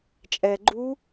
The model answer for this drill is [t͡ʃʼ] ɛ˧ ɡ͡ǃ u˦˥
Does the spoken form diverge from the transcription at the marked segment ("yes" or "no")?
no